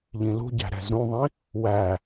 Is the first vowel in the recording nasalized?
yes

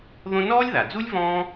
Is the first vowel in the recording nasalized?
yes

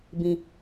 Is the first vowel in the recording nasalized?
yes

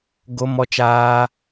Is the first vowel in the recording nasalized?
no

